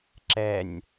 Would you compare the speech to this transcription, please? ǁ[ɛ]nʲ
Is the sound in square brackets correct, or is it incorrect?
correct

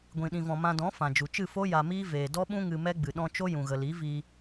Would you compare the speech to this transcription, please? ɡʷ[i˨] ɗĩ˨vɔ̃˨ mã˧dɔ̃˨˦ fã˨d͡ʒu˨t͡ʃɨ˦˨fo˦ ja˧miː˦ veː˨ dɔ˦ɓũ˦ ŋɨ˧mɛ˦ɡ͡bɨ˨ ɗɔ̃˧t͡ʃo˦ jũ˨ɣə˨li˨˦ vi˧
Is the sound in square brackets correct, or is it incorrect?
incorrect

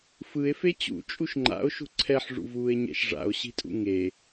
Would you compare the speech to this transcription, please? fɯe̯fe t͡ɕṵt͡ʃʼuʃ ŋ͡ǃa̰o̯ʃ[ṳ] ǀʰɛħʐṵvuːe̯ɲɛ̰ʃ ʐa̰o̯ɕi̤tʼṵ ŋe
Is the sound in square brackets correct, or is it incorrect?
correct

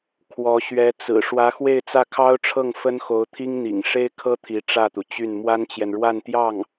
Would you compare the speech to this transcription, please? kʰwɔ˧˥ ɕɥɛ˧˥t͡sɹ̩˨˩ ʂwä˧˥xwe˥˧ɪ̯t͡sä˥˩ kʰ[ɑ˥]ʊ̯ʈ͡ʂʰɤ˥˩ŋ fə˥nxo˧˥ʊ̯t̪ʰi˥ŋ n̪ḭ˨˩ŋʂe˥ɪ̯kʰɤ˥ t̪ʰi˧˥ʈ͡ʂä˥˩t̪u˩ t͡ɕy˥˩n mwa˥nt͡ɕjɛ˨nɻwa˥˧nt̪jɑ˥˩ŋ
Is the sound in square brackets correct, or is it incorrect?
correct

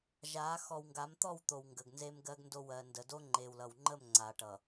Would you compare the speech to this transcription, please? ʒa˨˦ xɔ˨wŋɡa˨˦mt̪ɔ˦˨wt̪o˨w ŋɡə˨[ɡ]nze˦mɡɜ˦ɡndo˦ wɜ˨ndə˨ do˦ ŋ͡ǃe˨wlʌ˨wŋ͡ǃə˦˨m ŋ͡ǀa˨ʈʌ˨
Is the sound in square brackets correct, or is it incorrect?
correct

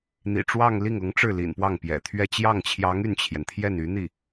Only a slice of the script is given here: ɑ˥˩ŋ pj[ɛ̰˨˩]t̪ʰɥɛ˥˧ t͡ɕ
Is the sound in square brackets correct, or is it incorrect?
correct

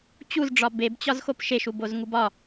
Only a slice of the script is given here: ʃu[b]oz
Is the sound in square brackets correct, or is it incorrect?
correct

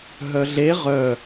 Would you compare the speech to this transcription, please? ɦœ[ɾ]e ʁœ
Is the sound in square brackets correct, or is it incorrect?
incorrect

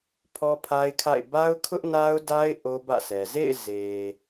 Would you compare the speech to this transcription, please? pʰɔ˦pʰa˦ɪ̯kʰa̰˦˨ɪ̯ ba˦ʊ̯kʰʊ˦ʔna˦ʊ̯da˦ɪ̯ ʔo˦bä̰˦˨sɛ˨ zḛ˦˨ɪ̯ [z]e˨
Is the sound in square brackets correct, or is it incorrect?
correct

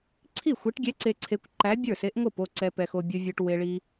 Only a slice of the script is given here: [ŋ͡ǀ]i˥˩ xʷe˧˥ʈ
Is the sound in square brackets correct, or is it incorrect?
incorrect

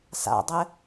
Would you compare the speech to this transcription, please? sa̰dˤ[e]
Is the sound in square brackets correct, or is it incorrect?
incorrect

